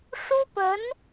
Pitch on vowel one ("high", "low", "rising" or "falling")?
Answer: high